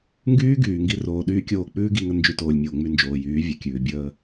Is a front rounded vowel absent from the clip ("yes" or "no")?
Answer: no